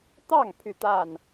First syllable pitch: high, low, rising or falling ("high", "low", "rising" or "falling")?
falling